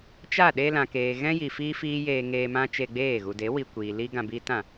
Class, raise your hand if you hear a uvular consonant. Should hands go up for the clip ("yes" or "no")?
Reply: no